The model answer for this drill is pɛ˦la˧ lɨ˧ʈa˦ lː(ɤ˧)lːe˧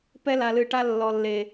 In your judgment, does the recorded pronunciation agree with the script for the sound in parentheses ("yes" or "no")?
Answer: no